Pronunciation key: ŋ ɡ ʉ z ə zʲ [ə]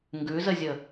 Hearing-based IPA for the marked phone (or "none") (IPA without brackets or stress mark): ə